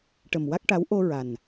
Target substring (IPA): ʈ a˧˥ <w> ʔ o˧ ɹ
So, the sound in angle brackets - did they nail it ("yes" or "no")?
yes